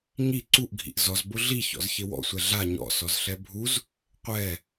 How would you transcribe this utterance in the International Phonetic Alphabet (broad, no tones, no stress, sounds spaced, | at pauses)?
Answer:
ɲ i ǀ u ʔ ɡʱ ḭ ʔ z ɔ z b ʊ ɮ i ç ɔ̰ z ç ɪ w ɔ̰ sʷ ɛ ɮ a ɲ ɔ̰ s ɔ z ɬ ɛ bʱ u z | qʷ ɛ